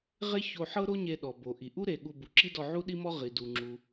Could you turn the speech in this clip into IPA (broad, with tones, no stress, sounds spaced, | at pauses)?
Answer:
ʁ e˥ ç o˧ ħ ɤ˥ ɾ o˥ ɲ e˧ ɗ ɔ˩ b o˩ ʔ i˩ ʔ u˥ ɾ e˩ ɠ u˧ b u˩ ǁ i˥ d ɔ˧ ʕ u˥ ɗ i˥ m ɔ˥ ʁ i˩ d u˩ ŋ͡ǁ u˩